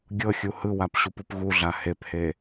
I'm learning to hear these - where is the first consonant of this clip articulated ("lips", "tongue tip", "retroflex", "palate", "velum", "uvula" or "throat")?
velum